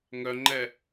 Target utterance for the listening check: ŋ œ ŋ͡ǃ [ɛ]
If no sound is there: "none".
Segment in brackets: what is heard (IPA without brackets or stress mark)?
ɛ